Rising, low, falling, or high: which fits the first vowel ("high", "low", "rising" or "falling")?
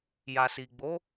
low